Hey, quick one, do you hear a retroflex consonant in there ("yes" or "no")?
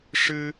yes